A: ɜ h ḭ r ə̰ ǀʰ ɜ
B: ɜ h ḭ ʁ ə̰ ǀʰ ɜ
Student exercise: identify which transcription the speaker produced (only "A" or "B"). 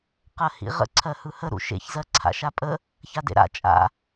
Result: B